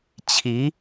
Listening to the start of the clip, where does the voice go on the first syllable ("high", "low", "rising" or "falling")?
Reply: rising